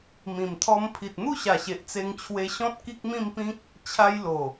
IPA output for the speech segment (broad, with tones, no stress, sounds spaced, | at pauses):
m ĩ˨˩ m t̪ʰ ɔ˧ m pʰ i˨ t̚ n̪ u˥˧ ɕ a˨˩ ɕ e˨ ʔ t͡s e˧ ŋ t͡ɕʰ w e˧ ɕ ɔ̃˦ t̚ k i˦ k̚ m ĩ˥˧ m p ĩ˦ k̚ | t͡ɕʰ a˧ j l o˨˩